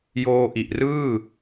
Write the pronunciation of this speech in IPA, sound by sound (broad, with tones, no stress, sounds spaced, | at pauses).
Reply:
j oː˧ ʔ i˨˩ ʔ r ɯː˥˩